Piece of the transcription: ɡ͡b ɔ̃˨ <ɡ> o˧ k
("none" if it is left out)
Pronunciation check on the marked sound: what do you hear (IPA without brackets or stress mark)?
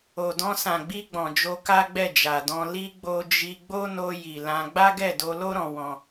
d͡ʒ